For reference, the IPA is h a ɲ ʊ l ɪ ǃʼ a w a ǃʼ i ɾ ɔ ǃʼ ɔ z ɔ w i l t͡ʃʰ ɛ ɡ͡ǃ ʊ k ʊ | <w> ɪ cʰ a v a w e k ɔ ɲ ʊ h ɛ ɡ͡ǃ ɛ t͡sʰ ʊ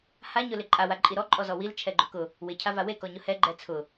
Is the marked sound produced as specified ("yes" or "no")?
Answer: yes